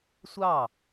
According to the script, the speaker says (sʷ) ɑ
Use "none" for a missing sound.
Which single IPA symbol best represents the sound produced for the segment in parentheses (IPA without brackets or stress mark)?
sʷ